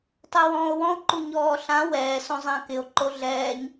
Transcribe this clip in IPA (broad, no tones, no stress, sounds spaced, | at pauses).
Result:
tˤ ɛ w ɔ̃ː o̯ w ɔ̃ o̯ ǃ u ɲ ɔː ɬ ã w ɛː s õ zˤ ã k ɪ o̯ ǃ o ɮ ɛː ɲ